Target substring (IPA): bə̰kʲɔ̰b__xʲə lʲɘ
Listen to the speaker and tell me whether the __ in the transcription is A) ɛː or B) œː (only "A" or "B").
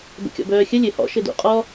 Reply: B